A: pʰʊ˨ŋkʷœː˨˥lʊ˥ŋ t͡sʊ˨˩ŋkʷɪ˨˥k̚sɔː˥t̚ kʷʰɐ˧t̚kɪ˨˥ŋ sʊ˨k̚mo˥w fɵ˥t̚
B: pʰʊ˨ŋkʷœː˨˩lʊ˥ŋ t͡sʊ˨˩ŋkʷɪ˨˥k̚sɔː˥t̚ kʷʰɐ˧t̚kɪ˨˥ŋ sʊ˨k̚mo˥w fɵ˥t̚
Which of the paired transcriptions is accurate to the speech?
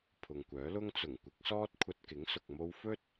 A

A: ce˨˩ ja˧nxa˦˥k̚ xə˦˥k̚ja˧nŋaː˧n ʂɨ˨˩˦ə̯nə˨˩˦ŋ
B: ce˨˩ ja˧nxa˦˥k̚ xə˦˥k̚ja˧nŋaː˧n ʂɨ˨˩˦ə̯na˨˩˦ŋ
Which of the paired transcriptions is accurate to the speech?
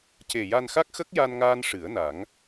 B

